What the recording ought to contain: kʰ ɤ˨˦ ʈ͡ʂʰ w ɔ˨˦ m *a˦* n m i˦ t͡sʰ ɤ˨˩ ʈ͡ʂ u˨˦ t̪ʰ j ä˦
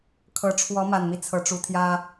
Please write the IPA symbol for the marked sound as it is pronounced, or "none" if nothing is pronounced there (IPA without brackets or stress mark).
a˨˩